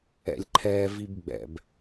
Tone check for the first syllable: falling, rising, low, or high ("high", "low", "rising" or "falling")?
low